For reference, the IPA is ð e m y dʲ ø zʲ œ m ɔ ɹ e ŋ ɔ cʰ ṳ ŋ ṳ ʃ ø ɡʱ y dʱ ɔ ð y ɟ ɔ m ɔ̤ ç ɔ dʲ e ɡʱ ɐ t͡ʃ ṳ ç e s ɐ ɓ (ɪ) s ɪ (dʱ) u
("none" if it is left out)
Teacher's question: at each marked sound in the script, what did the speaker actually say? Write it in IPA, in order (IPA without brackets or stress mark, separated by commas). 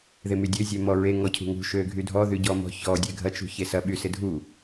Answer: y, dʱ